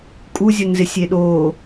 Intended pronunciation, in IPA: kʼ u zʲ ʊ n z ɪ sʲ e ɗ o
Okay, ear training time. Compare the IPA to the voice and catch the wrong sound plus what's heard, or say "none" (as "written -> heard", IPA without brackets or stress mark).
none